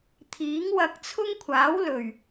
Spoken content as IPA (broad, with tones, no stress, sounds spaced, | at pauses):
t̪ʰ iː˨˥ ŋ w ɐ˧ k̚ t͡sʰ ʊ˥ ŋ kʷʰ aː˨˥ w l ɵ˨˩ ɥ